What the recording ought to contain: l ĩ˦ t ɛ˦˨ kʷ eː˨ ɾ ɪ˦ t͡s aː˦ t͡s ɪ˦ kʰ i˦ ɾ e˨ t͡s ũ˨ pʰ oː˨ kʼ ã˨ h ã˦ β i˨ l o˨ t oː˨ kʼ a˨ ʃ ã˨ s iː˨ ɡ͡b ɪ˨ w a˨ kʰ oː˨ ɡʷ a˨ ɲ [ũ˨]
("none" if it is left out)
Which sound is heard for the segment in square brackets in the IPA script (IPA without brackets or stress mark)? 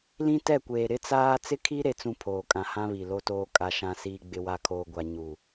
u˨